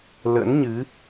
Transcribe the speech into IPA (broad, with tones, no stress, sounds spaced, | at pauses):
l ə̰˧˥ n ɲ ɨ˨˦